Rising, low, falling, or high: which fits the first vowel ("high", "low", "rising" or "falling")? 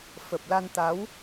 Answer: low